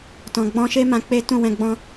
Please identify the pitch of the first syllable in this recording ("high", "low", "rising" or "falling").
low